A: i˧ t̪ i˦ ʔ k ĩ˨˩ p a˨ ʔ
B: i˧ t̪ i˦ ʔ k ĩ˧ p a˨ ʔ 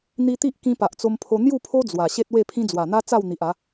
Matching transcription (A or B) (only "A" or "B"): B